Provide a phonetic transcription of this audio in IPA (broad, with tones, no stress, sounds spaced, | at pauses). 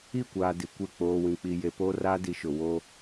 i˦˨ kʷ aː˨ d i˨ kʷ e˦˨ k͡p oː˨ w ĩ˨ k͡p i˨ j e˨ p oː˦ r aː˦ d i˨˦ ʃ ʊ˨ w o˦